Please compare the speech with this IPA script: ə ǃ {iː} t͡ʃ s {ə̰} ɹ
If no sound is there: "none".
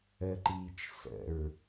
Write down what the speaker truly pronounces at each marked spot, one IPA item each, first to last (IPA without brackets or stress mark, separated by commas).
iː, ə̰